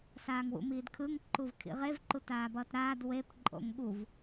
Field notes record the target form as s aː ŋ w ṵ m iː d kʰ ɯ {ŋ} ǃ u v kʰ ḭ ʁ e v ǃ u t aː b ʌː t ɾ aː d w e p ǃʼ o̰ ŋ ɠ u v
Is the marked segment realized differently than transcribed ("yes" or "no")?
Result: no